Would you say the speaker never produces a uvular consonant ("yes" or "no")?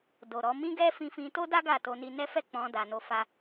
yes